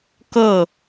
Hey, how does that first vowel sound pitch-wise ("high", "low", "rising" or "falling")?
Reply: falling